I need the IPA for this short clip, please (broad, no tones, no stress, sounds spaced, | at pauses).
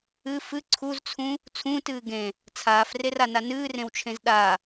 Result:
ɨ f ɨ ǀʰ u z t͡sʰ ũ | t͡sʰ ũː t ɨː ɡ ẽ | t͡sʰ aː f r e r a n a n ɨː r ẽ w t͡ʃʰ ẽ z ɗ a